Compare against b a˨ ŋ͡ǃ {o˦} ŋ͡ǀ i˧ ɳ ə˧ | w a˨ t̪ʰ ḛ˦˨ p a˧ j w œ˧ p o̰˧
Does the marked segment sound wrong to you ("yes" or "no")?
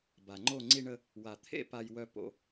yes